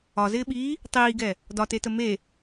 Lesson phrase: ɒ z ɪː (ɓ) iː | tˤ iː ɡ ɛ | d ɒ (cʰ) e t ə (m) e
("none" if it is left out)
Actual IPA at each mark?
ɓ, t, m

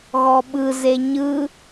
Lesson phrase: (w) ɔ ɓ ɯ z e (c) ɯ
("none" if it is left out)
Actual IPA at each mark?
ɣ, ɲ

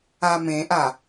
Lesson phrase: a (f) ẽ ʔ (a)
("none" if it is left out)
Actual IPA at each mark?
m, a

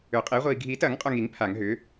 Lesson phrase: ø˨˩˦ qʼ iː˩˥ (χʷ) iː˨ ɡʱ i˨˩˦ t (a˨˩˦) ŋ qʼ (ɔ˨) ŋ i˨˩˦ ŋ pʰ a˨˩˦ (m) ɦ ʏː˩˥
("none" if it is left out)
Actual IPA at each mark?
ʁʷ, ɐ˨˩˦, ʊ˨, ŋ

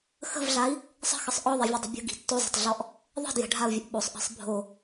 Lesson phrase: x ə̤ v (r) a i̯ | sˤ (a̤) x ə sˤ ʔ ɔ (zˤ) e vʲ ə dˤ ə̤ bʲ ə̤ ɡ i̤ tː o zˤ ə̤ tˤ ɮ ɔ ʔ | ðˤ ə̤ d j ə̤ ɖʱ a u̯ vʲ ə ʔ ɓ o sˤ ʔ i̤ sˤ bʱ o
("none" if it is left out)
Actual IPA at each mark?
ɮ, ə̤, ðˤ

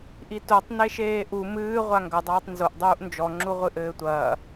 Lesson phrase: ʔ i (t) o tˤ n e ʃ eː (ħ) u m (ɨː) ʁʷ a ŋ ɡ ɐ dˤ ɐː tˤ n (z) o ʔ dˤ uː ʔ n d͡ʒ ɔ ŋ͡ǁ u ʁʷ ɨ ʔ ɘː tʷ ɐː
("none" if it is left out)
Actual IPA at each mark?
t, ʔ, ɨː, z

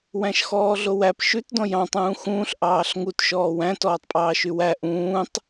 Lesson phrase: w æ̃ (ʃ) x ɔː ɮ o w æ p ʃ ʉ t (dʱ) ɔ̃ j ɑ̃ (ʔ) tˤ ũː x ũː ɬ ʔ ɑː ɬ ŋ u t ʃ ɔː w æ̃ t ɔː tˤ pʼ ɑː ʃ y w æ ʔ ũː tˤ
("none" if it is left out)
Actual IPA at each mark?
ʃ, d, none

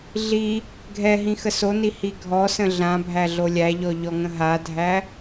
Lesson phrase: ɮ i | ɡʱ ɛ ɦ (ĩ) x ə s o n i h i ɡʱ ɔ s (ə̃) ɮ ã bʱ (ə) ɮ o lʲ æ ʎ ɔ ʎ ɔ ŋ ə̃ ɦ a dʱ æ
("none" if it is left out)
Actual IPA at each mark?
ĩ, ə̃, æ

